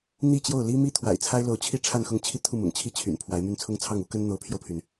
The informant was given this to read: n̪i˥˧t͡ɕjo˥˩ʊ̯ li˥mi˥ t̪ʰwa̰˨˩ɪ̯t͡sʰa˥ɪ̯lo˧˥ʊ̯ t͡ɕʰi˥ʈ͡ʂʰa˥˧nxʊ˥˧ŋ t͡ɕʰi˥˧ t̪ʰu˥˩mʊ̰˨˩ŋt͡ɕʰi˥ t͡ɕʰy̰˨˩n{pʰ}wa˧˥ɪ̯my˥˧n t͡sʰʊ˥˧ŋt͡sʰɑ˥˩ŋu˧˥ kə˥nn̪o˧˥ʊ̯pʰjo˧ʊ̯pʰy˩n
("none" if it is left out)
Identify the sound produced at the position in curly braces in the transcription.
pʰ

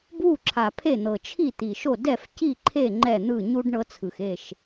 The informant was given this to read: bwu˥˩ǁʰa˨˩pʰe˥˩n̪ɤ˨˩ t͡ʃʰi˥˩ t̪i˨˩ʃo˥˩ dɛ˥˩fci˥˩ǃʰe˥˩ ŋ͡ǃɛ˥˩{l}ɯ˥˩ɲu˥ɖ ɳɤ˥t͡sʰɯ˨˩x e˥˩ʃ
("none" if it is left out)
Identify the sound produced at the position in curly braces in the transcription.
n̪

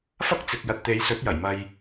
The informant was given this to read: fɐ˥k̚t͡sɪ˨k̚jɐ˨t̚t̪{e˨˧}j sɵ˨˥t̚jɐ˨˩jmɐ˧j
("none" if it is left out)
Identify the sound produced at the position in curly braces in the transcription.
e˨˧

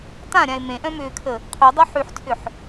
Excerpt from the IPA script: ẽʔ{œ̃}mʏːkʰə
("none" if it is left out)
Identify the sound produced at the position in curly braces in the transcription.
œ̃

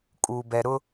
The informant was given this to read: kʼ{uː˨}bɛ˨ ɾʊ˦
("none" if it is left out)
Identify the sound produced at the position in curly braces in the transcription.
uː˨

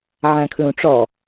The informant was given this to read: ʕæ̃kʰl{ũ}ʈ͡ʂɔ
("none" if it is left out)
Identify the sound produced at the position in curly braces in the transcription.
ũ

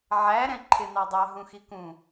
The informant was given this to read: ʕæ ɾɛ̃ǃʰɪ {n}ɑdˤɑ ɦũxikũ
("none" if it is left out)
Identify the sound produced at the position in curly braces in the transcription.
n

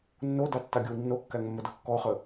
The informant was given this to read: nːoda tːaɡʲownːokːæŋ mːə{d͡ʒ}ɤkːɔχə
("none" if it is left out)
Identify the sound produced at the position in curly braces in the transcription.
d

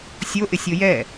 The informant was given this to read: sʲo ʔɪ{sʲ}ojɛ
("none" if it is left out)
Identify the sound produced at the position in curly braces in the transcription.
sʲ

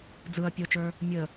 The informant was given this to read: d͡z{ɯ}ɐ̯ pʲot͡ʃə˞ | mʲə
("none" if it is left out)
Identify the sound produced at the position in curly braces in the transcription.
ɯ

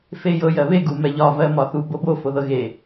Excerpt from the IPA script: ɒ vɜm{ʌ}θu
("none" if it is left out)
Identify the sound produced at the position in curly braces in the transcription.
ɒ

